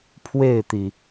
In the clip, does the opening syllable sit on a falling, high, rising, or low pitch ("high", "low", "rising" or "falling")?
falling